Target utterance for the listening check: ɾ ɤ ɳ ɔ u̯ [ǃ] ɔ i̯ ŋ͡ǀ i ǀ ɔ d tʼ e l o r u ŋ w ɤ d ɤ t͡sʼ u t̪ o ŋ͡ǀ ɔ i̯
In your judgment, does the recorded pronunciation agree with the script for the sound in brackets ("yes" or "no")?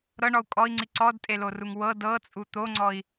no